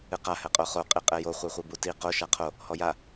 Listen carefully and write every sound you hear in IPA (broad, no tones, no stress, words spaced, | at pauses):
ɨqa hɛqʼoχo qʼiqʼɛjo χʷeχʷebuti qo ʃaqʰo | hɔja